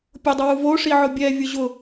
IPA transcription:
pʲ ʊ dˤ ʊ w u v o ʂ i ʕ ʊ bʲ ɛ vʲ ʊ ʑ ʊ

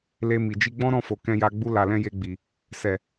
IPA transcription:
l e˧ m i˨ d͡ʒ i˧ ɡ͡b ɔ̃˦ ɾ ɔ̃˦˨ f o˨ k ɛ̃˧ j a˧ ɡ͡b u˧ l a˨ l ɛ̃˧ j e˧ ɡ͡b i˨ | s ɛ˨

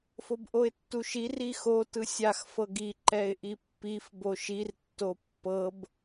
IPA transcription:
f o b ʔ o ɪ̯ tː u ʃ i r i x o t ɯ sʲ a x f ɤ ɡ i ǃ ɛ ɪ̯ ʔ i pː i f b o ʃ i r tː o pː ɤ b

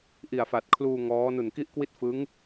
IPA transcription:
ʔ i˨˩ a̯ f a˨˩ t̚ kʰ l uː˧ ŋ ɔː˦˥ n u˨˩ n k i˥˩ ʔ k w i˥˩ t̚ f ɯ˦˥ ŋ

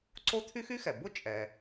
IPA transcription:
ǀ o˥ t̪ʰ y˥ x y˥ x ɛ˩ b ʊ˥ t͡ʃʼ ɛ˩

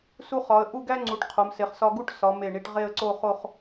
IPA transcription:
s u˧ χ ɒ˩˧ ə̯ ʔ u˥˧ ɡ æ˥ ŋ͡ǀ u˩˧ ʈ qʰ o˩˧ m s e˩˧ χ s ɒ˧ ɡ u˥˧ ʈ s ɒ˩˧ m e˧˩ ɳ i˧ ʈ ʁ e˥˧ ə̯ ǀ o˥˧ χ o˥˧ χ

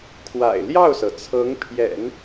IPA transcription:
kʰ w a̰˨˩ ɪ̯ l j ɑ˥˩ ʊ̯ s ɤ˩ t͡sʰ ɤ˧˥ ŋ pʰ j ɛ̰˨˩˦ n

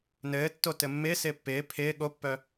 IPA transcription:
n ɘː tː o t ɘ mː ɪː s ɪː pː ɪː pʰ ɪː ɠ o pː œ

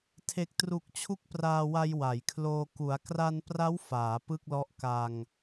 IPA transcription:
tʰ e˨˩ k̚ t r u˨˩ k̚ t͡ɕʰ u˦˥ k̚ p r aː˧ w a˧ j w a˩˦ j kʰ l oː˧ k u˩˦ a̯ k r a˧ n p r a˦˥ w f aː˩˦ p ɯ˥˩ k̚ l ɔ˦˥ ʔ k a˧ ŋ

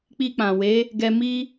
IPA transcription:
k͡p i˧ k͡p ã˨ w e˨˦ | ɡ ɛ˧ m i˦

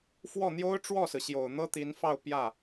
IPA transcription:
f w ɔ˥˩ n̪ j o˥ ʊ̯ ʈ͡ʂ w ɔ˥˩ s ɹ̩˩ ɕ j o˨˩ ʊ̯ n̪ ɤ˥ t̪ i˧˥ n f ɑ˥˧ ʊ̯ p j ä˥˩

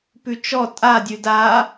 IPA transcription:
p ʉ t͡ʃ ɔ tʼ a dʲ ʉ d a

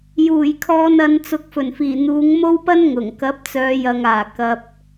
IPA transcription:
j uː˨˩ j kʰ ɔː˨ n ɐ˨˧ n t͡s ʊ˨˥ k̚ f ɵ˨˩ n f iː˨˩ n̪ uː˨˧ ŋ m o˥ w p ɐ˥ n ŋ ʊ˨˩ ŋ k ɐ˨˥ p̚ t͡s œː˨˧ j ɐ˨ ŋ aː˨˩ k ɐ˨ p̚

